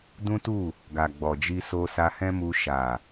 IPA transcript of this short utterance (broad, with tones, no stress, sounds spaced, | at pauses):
d ũ˦ t u˦˨ | ɡ a˨ ɡ͡b ɔ˨ d͡ʒ i˧ s o˧ s a˧ h ɛ̃˦ m u˧ ʃ a˨